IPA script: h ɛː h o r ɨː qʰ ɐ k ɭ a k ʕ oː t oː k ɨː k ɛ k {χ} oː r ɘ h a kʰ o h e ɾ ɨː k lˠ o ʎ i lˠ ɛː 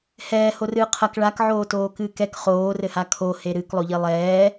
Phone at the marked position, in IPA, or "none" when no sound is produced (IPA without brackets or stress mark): χ